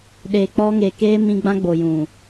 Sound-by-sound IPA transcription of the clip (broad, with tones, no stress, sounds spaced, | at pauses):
ɗ e˨ k͡p ɔ˧ ŋ e˨ k eː˧ m ĩ˧ ɡ͡b ã˦ ɡ͡b o˨ j ũ˨